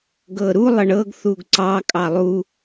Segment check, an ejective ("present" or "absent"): present